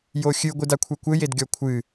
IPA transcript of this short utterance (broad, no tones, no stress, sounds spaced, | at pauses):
j o xʲ ɨ ɡʷ ɨ d a kʷʰ ɛ kʷ ɘ j e d ɡʲ ɔ kʷʰ ɨ